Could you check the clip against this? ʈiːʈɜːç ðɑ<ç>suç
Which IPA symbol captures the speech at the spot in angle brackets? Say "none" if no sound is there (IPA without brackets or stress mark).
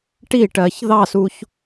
none